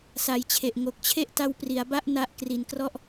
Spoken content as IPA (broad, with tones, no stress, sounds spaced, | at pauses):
s a˨˩ j t͡ɕʰ e˨˩ ʔ ŋ o˨˩ k̚ t͡ɕʰ e˥˩ ʔ t a˦˥ w p r i˩˦ a̯ b a˥˩ ʔ n a˦˥ ʔ k r i˨˩ n k r ɔ˥˩ ʔ